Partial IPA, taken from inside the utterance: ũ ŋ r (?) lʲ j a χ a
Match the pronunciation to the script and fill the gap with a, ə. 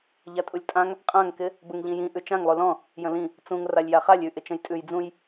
a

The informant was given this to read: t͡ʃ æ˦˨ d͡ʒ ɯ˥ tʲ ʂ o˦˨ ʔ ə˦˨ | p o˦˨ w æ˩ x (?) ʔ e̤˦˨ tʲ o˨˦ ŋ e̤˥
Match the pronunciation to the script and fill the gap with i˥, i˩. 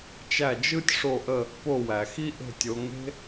i˥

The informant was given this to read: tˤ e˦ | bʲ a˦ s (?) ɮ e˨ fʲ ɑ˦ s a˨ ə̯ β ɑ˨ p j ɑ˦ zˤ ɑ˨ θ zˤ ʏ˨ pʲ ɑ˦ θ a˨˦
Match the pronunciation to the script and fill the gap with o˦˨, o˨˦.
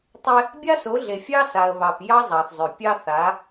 o˨˦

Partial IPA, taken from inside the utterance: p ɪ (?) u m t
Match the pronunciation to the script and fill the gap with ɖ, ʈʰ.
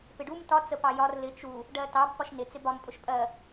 ɖ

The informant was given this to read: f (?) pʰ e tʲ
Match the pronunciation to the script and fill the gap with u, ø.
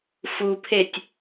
u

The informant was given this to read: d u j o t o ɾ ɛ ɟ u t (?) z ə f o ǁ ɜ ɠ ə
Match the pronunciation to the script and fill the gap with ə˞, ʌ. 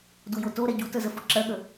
ə˞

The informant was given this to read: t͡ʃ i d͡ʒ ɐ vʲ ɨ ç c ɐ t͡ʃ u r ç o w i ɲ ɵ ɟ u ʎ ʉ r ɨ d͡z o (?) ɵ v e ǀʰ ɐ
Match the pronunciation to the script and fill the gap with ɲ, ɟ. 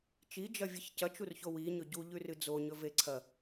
ɲ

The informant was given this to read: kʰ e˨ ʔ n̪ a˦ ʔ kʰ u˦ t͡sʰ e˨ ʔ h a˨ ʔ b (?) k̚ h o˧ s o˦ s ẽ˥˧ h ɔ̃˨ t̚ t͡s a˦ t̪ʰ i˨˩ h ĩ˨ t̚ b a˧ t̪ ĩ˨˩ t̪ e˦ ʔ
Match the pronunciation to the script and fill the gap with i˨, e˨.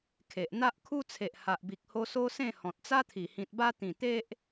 i˨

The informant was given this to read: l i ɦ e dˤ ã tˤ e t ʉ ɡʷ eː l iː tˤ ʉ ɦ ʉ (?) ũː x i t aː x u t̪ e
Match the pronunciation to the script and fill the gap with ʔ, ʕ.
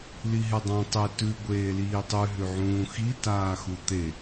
ʕ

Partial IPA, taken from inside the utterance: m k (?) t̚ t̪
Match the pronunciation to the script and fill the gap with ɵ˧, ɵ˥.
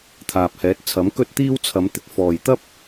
ɵ˥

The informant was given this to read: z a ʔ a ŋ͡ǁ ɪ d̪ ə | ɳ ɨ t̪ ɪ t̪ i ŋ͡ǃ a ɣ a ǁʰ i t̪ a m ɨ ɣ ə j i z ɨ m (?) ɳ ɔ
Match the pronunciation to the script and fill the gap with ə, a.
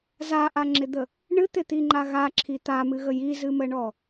ə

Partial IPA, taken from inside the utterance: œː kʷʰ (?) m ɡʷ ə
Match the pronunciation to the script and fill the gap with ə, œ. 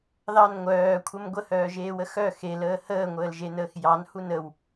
ə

